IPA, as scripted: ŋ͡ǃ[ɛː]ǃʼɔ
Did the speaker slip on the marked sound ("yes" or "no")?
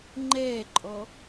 no